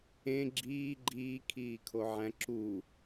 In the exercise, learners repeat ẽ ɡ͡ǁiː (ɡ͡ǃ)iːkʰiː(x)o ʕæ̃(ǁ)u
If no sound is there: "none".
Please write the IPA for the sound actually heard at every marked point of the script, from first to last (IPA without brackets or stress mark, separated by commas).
ɡ͡ǃ, kʰ, ǁ